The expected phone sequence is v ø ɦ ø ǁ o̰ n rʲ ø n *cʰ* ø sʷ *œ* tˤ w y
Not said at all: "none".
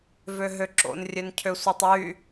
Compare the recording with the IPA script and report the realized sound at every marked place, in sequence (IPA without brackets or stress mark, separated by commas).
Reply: cʰ, œ